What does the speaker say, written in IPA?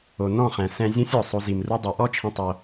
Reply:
o˨ n ɔ̃˦˨ χ ɛ̃˨ s ɛ̃˧ zʲ ũ˦ sʲ ɔ˨ sˤ o˧ z i˨ m r u˦ dˤ u˨˦ ʔ ɔ˦ t͡ʃʰ ĩ˧ tˤ o˧

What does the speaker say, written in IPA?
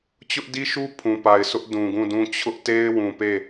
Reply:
t͡ɕ ʊ˦ ʔ d i˦ ʃ u˦ pʰ ũ˨ p a˨ ɪ̯ s ʊ˦ ʔ d ũ˨ ɡ ũ˦˨ d ũ˦ t͡ɕʰ ʊ˦ ʔ t e˦ ɪ̯ w ũ˨ p e˦˨

